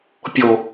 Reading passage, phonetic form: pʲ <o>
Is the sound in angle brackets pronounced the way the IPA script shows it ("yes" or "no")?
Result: yes